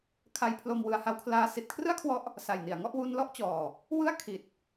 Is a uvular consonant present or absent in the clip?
absent